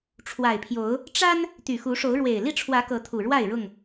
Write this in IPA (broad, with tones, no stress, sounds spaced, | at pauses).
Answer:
ʈ͡ʂʰ w a˨˩ ɪ̯ pʰ j o˨˦ ʊ̯ | ʈ͡ʂ a˦ n | t̪ y˨˩ x u˨˦ ʂ o˨˦ ʊ̯ ɻ w e˨˩ ɪ̯ l i˥˨ ʈ͡ʂʰ w ä˨˦ k ɤ˨˦ t̪ʰ u˨˩ ɻ w a˥˨ ɪ̯ ɻ ʊ˥˨ ŋ